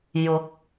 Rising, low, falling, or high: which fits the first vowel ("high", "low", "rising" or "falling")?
rising